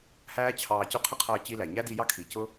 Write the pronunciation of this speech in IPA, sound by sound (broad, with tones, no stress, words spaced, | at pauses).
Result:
hæː˦t͡ɕʰɑː˧cʊ˦ qʰə˦qʰʌː˧ t͡ɕi˦læ˨ ɲæ˦di˧ jɑ˦kʰi˨cʊ˦